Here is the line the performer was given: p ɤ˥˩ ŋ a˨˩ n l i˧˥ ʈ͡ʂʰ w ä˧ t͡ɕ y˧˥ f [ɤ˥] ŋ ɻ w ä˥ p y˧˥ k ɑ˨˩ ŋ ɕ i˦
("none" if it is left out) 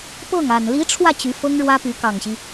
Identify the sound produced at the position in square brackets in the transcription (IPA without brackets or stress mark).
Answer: ɤ˥